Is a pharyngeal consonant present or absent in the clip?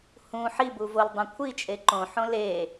present